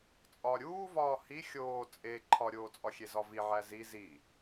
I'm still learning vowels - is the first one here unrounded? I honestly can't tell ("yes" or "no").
no